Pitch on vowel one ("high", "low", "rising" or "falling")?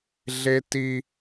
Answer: high